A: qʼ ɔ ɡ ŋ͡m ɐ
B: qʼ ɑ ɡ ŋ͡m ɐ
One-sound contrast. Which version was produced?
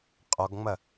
A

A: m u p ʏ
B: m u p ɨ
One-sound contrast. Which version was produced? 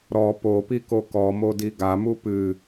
B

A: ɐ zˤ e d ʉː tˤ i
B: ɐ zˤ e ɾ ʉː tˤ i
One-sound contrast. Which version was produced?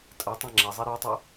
B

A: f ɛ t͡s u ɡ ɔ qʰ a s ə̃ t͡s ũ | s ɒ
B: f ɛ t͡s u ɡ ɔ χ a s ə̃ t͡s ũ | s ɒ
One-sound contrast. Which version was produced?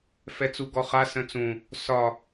B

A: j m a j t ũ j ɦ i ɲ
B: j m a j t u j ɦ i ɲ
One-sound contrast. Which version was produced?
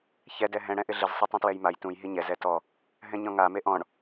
A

